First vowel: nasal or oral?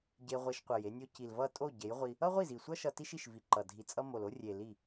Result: oral